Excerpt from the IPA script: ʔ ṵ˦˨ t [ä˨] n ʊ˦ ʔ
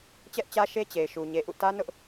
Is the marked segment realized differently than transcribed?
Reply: yes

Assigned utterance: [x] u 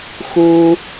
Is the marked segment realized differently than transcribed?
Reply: no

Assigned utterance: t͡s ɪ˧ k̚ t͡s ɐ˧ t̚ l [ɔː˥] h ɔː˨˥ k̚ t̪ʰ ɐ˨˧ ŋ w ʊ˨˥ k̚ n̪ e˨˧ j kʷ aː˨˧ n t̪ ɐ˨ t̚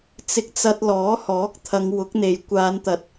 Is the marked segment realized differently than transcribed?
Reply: yes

